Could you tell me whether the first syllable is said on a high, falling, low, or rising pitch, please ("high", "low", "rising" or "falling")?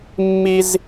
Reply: high